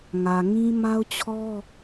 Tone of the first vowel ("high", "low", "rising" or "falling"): low